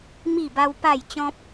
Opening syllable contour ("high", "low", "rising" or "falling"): falling